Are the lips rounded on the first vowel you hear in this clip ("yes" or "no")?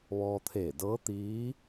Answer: yes